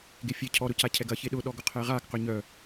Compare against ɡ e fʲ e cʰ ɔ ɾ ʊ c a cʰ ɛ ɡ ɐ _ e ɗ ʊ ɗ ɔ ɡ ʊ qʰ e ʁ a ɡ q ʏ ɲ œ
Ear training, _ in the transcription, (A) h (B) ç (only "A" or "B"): B